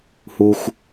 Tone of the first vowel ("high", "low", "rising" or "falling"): low